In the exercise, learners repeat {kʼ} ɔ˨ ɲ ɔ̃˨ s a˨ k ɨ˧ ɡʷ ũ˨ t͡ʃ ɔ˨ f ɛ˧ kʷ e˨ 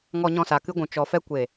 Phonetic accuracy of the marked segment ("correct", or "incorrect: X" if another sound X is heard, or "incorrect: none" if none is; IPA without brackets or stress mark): incorrect: ŋ